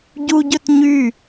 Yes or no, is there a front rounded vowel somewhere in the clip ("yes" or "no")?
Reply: yes